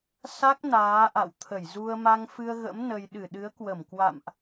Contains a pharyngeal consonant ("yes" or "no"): no